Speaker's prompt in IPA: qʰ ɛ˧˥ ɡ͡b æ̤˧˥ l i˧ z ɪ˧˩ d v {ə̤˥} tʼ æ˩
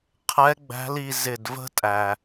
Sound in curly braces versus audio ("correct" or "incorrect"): correct